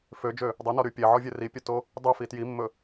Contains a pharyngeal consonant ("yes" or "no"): yes